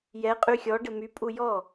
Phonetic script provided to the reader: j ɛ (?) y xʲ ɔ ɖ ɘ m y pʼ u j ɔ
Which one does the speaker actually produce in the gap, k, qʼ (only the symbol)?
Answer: qʼ